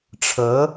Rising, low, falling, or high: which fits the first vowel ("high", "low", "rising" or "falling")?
rising